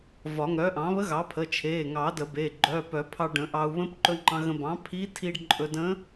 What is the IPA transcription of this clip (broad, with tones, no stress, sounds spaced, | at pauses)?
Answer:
v ɒ˨˩˦ ŋ œ˩˥ ʔ ɑ̃˩˥ β ə˧˥ ɣ ɑ˩˥ pʰ ə˩˧˩ t͡ʃʰ e˩˧˩ ŋ ɑ˨˩˦ d ə˨˩˦ b e˩˧˩ ɡ͡ǃ œ˩˧˩ p œ˨˩˦ pʰ ɑ˧ ɖ ə̃˨˩˦ ʔ ɑ˧ u̯ β ə̃˧˥ p ǃ ɵ˧ ŋ͡ǃ ɑ̃˧ ɣ ə̃˧ b ɑ̃˩˥ pʰ i˧˥ tʰ i˧ ɖ ǃʼ ɵ˧ d ə̃˧˥